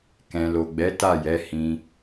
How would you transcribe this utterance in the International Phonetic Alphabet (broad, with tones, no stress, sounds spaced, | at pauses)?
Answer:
k ɛ̃˨ l o˨ ɡ͡b ɛ˨˦ t a˦˨ j ɛ˨˦ h ĩ˧